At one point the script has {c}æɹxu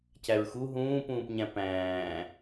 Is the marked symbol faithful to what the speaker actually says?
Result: yes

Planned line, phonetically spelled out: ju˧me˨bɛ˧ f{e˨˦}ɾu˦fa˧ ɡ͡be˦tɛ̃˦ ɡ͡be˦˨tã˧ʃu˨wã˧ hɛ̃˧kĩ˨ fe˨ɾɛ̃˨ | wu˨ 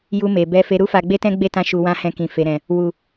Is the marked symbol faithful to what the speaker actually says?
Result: no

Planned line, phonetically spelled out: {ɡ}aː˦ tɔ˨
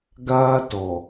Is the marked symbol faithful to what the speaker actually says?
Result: yes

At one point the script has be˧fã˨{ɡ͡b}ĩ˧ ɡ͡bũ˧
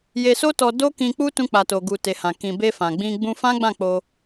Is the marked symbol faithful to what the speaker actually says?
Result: yes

